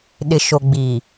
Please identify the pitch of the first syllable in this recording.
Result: low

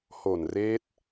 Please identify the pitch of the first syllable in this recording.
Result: low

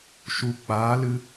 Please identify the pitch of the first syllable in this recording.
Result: low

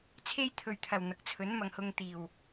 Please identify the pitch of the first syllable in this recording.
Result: high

